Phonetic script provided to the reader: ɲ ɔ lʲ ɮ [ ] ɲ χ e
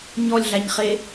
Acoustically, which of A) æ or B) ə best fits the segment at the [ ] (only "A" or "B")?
A